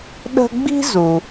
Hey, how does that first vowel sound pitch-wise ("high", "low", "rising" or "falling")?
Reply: high